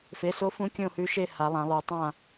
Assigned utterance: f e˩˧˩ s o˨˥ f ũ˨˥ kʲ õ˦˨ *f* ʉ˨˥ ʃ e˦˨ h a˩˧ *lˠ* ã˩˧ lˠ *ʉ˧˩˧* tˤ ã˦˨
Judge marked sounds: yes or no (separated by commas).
no, yes, no